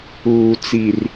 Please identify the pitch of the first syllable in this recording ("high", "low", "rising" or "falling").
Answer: low